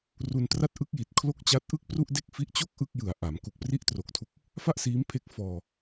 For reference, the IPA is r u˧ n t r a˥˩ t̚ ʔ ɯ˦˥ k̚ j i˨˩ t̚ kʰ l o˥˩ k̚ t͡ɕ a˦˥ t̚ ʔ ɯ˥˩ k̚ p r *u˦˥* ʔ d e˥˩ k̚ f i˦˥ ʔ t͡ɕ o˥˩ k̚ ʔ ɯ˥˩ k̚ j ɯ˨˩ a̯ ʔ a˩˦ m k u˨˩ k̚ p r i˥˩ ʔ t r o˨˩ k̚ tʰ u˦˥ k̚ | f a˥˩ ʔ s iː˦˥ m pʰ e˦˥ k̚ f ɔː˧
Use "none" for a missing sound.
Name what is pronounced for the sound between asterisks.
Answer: u˥˩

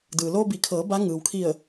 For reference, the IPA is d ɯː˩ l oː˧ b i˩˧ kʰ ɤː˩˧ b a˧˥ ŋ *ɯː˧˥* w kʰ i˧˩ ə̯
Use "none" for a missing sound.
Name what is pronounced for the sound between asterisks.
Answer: ɯː˩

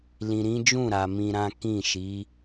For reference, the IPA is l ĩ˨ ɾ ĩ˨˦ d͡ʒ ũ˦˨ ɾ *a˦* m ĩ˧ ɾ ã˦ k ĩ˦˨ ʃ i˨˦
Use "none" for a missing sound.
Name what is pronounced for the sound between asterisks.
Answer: a˨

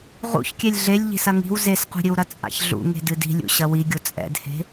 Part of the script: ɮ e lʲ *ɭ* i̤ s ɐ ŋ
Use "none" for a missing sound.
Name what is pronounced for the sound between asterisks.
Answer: ʎ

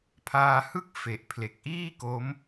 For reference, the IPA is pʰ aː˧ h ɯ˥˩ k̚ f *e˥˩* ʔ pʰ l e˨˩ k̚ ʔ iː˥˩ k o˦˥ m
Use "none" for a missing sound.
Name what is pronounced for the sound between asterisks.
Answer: e˨˩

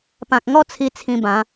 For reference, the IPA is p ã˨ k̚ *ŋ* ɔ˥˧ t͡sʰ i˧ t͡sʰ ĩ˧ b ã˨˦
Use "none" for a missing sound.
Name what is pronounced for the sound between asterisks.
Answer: ŋ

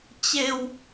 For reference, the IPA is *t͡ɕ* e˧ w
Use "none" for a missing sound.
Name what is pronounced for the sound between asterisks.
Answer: t͡ɕ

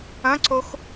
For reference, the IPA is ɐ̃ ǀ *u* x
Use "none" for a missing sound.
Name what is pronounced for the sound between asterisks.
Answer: o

